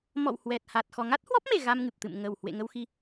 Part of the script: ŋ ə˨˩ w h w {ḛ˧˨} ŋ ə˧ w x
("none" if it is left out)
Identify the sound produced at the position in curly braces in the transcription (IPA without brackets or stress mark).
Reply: ḛ˧˨